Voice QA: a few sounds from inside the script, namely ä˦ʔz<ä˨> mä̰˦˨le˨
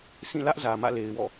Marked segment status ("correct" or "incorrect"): correct